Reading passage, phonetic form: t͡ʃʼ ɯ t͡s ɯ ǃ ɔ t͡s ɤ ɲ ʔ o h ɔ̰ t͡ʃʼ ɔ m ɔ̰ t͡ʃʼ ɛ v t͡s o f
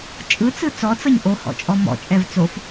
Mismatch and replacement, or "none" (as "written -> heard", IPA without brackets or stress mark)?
ǃ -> t͡s